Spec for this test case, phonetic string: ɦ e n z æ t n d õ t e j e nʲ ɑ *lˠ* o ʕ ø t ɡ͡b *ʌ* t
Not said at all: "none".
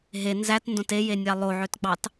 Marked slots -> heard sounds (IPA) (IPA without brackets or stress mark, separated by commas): lˠ, ɑ